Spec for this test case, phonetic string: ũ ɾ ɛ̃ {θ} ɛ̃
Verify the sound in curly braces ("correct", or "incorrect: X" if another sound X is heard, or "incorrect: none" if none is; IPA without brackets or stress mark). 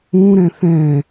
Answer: correct